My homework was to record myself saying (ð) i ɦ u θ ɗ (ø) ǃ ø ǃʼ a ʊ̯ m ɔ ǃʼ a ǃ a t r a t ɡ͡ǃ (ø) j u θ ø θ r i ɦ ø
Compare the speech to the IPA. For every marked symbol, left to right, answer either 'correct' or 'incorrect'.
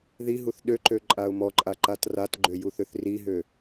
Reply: correct, correct, correct

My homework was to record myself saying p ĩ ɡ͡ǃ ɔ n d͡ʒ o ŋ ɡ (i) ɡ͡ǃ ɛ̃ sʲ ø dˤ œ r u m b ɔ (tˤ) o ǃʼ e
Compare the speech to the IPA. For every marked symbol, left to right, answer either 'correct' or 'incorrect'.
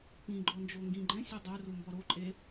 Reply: incorrect: ĩ, incorrect: ɾ

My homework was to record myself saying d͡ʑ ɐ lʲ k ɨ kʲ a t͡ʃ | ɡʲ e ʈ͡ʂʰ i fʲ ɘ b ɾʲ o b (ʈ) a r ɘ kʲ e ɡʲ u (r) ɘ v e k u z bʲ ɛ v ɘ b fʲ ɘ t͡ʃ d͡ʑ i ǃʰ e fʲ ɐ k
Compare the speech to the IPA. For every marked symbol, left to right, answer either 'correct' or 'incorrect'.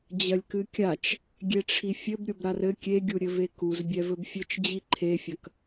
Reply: incorrect: ɾ, incorrect: ɾʲ

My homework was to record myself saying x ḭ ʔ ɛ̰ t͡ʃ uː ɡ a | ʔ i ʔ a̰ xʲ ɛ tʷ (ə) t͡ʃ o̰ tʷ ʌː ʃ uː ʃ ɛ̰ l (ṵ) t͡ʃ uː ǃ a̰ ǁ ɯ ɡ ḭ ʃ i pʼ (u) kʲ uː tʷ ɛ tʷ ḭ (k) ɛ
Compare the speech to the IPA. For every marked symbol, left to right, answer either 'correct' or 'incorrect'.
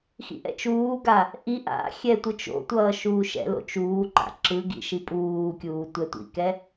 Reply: incorrect: ɯ, incorrect: o̰, incorrect: uː, correct

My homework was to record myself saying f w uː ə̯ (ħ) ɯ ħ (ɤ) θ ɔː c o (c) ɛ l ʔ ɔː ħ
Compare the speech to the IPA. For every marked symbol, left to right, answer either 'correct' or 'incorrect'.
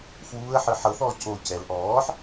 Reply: correct, correct, correct

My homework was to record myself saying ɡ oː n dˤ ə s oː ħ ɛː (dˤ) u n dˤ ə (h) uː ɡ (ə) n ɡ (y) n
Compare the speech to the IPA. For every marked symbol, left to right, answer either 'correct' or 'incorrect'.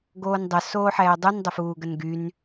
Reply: correct, incorrect: f, correct, correct

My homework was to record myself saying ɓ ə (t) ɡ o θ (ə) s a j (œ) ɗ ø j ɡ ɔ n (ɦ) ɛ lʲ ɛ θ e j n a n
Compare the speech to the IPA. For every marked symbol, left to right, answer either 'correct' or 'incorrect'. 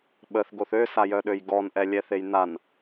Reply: incorrect: θ, incorrect: ø, correct, incorrect: ʔ

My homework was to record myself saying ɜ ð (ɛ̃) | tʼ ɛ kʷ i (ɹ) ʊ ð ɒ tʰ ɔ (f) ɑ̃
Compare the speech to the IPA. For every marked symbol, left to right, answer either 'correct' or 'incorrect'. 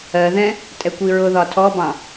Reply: correct, correct, incorrect: b

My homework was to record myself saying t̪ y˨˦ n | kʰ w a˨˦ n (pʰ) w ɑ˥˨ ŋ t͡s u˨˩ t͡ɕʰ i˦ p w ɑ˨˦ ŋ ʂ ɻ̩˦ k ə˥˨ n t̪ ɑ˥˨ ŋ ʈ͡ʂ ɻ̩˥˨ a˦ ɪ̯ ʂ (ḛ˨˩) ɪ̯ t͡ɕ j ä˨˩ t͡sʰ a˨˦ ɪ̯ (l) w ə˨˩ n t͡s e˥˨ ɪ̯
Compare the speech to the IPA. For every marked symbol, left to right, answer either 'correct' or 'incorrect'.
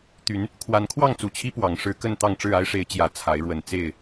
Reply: incorrect: kʰ, incorrect: e˨˦, incorrect: ɻ

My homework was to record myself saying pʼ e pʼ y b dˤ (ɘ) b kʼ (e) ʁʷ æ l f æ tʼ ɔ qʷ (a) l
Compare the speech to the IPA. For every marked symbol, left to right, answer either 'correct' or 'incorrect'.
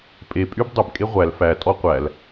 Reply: correct, correct, incorrect: æ

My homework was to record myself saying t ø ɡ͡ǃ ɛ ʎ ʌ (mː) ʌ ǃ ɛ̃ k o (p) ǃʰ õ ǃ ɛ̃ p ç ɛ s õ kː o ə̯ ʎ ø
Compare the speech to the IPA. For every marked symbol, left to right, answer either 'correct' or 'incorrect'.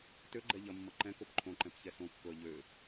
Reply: correct, correct

